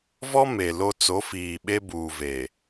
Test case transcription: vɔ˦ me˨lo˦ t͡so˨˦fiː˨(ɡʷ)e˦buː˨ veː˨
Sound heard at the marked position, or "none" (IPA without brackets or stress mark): ɓ